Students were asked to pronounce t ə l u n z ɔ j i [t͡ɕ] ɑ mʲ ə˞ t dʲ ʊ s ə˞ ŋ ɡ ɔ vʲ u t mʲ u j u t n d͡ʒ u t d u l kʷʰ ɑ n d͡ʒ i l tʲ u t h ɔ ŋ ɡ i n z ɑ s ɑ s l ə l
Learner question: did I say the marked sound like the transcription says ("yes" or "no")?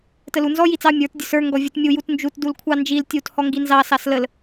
no